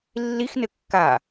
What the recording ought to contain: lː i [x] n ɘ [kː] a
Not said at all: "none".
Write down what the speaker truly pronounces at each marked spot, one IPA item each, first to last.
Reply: x, kː

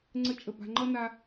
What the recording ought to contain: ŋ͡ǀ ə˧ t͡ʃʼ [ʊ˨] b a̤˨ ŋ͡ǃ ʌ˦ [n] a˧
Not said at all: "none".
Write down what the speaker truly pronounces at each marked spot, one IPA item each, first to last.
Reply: ə˨, n

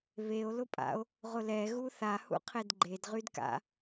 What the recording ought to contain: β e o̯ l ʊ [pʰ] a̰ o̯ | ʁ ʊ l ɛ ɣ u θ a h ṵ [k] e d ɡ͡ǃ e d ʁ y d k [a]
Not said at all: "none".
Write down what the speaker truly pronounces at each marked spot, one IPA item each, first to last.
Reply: pʼ, qʰ, a̰

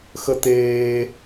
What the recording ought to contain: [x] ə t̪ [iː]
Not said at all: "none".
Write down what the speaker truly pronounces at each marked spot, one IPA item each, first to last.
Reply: x, eː

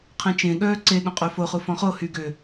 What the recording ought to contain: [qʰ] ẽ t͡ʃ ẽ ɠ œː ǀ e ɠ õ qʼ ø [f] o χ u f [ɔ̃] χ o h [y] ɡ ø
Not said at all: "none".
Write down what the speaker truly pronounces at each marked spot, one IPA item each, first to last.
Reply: qʰ, f, ɔ̃, y

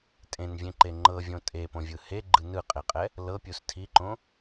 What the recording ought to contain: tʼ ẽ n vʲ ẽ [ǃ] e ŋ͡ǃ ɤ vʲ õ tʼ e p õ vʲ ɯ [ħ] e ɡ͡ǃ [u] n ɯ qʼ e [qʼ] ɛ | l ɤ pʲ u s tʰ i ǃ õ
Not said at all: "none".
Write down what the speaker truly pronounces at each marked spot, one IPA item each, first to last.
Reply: ǃ, h, ɯ, qʼ

